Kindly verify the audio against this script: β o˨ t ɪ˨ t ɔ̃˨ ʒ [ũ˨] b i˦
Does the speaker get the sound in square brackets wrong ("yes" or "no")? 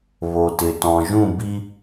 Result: yes